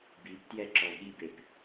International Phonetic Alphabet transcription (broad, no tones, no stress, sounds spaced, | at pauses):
b i p t j ɛ ǁ ɔ ɠ i b e p